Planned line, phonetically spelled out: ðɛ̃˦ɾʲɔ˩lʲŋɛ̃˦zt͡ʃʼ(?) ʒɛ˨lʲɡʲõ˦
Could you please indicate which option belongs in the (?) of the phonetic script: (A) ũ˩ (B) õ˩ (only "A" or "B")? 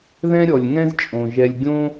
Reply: B